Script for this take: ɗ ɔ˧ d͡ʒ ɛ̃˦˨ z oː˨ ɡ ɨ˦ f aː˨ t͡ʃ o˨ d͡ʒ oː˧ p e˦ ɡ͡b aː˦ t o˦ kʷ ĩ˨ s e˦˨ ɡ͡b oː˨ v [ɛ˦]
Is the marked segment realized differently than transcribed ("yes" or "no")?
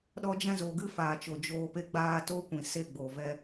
no